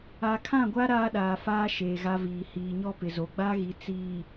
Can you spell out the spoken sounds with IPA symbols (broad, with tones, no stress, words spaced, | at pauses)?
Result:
a˨kʰã˦˨ɡʷa˦ ɾaː˦ɗaː˨faː˦ ʃeː˨ɣa˦viː˨ hiː˨ɲɔ˦pɪ˨zo˨ ɡ͡ba˦ɣi˨ t͡siː˨